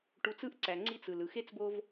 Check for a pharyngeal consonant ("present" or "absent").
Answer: absent